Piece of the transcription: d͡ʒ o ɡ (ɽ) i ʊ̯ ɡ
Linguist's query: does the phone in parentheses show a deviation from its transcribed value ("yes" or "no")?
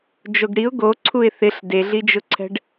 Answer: no